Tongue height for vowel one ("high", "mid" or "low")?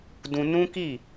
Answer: high